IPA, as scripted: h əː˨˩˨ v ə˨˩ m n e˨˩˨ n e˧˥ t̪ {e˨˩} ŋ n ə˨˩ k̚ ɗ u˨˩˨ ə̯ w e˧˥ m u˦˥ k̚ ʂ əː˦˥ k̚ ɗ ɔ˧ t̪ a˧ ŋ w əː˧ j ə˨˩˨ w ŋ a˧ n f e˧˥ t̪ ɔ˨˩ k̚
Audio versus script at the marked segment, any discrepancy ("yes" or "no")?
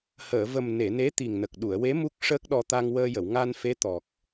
yes